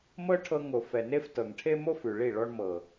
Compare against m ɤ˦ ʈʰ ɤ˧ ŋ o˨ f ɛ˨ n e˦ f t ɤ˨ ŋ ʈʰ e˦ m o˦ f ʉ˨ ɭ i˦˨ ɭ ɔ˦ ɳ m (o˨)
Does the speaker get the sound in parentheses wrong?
yes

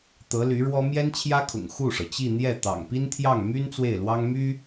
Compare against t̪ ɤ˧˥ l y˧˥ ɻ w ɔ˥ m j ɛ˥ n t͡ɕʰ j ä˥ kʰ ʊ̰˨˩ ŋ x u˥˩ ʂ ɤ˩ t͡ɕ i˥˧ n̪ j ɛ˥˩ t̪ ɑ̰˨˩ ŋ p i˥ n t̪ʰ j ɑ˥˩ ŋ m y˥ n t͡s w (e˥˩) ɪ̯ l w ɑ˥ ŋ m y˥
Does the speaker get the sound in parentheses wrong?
no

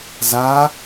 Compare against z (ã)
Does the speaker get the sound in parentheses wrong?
yes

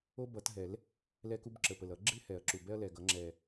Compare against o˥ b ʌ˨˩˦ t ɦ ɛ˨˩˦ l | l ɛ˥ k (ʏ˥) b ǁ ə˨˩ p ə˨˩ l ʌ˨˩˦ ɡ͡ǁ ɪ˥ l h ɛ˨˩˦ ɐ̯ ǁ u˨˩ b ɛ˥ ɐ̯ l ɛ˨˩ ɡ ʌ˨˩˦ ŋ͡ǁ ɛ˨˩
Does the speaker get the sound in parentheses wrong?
yes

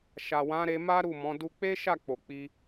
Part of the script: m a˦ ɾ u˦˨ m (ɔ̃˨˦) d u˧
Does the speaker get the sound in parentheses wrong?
no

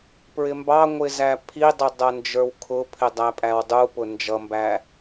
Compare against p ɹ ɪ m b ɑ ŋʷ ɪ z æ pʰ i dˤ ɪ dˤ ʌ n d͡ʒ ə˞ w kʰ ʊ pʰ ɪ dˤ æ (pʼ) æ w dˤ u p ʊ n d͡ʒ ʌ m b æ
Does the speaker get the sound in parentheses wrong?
no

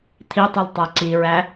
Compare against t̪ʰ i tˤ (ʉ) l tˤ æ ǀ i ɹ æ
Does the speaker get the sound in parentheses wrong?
yes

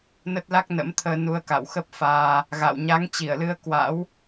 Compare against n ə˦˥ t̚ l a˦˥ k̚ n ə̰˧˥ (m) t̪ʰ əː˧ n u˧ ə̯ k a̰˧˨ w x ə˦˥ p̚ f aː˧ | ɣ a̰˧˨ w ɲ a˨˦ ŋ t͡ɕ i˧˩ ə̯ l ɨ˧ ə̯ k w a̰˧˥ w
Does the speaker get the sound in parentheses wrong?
no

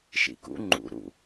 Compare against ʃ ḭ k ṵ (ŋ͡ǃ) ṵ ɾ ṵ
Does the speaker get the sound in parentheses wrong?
no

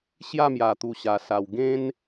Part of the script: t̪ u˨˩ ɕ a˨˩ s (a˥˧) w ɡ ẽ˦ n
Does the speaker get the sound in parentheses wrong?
yes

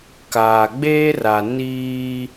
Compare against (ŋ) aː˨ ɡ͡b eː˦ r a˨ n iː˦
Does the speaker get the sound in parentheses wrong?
yes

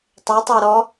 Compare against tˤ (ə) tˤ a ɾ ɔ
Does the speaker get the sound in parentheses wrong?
yes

